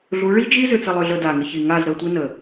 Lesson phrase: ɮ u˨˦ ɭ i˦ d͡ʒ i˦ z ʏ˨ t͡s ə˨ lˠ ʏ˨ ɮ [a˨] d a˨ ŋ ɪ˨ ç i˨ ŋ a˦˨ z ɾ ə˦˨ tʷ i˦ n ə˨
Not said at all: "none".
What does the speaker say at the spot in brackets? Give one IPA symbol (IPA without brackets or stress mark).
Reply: ə˨